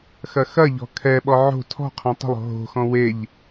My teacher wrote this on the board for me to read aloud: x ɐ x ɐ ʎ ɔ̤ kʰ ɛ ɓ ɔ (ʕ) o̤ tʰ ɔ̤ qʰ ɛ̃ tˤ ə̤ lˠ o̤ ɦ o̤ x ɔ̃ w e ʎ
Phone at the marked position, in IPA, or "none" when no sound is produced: ʕ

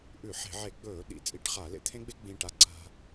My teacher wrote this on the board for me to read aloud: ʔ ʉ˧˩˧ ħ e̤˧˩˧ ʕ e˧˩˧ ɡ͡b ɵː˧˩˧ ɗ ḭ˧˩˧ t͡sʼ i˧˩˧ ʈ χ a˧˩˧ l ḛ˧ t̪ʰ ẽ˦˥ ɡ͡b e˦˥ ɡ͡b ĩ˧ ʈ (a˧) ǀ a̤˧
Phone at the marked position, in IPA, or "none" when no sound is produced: a˧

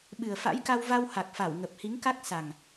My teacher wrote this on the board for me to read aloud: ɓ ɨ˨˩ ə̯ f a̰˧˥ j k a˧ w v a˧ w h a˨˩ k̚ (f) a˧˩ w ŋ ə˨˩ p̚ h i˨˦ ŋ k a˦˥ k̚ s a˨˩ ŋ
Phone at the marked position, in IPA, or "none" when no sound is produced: f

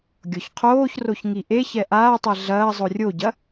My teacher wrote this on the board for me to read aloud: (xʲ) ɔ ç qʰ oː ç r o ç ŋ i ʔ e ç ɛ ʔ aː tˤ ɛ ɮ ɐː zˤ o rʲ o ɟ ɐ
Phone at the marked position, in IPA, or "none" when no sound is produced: ɡʲ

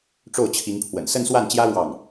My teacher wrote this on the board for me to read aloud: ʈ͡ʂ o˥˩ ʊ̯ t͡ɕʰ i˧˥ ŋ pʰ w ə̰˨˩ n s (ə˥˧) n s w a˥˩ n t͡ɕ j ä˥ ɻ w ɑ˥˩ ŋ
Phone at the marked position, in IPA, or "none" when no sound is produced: ə˥˧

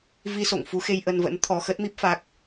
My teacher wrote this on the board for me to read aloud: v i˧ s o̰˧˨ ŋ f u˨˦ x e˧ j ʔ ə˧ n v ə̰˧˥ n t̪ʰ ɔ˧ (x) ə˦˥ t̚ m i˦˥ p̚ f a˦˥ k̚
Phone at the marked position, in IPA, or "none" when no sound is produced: x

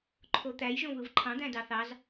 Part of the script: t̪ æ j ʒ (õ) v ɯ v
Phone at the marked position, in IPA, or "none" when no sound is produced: õ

